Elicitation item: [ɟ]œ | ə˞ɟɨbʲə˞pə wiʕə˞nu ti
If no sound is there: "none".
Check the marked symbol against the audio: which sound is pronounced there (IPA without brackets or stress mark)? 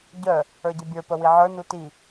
ɟ